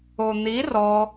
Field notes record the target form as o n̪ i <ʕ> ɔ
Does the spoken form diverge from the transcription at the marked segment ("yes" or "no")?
yes